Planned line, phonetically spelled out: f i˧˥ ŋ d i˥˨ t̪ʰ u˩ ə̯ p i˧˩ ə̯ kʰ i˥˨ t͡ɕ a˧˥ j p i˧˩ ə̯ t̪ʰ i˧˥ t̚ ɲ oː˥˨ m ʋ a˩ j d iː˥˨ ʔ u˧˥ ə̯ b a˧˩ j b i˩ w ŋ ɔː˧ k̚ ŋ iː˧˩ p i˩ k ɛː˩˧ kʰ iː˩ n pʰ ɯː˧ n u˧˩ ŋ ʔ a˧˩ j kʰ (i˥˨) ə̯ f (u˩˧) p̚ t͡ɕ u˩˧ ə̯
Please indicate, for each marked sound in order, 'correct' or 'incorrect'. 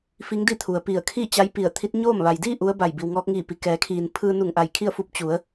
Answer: correct, incorrect

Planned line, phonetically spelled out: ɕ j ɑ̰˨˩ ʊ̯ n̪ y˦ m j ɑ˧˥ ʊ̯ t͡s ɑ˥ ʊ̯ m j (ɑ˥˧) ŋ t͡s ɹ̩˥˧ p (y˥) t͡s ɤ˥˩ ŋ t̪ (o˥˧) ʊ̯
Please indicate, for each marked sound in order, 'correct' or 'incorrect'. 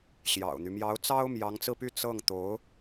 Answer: incorrect, incorrect, incorrect

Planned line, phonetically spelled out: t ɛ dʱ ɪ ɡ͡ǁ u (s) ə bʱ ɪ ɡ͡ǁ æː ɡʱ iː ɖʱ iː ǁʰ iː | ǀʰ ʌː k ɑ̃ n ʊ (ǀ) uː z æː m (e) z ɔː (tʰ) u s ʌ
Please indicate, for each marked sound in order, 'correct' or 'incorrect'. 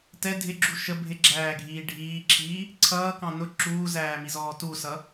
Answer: incorrect, incorrect, incorrect, incorrect

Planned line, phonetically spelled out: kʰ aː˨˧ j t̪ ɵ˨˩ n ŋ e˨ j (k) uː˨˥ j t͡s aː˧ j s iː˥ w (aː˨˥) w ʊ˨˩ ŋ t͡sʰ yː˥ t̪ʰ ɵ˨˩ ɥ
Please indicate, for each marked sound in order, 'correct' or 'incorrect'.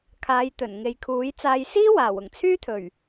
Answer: incorrect, incorrect

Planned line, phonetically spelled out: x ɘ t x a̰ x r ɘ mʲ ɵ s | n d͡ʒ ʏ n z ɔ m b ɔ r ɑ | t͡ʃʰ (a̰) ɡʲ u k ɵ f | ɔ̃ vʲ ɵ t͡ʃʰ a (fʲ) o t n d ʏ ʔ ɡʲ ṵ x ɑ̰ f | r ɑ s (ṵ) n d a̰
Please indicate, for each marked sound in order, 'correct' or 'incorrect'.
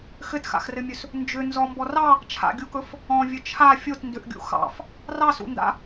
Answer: correct, correct, correct

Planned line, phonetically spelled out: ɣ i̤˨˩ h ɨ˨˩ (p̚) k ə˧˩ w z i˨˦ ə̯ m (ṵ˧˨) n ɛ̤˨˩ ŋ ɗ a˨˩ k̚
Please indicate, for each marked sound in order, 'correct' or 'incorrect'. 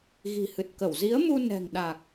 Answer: incorrect, incorrect

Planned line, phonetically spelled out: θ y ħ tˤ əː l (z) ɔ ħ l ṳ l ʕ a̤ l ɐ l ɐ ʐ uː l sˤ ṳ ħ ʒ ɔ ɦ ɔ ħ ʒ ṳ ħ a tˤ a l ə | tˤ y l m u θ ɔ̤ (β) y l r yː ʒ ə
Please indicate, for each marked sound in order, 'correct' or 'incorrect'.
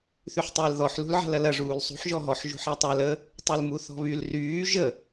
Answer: incorrect, correct

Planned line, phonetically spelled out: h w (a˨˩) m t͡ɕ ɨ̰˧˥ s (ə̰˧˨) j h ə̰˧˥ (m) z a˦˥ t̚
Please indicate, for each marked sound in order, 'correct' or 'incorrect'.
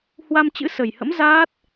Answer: incorrect, incorrect, correct

